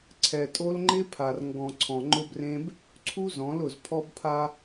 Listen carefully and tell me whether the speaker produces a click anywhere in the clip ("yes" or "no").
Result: yes